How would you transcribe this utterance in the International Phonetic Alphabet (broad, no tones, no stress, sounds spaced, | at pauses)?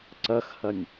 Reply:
ǀ ɐ x h ɐ nʲ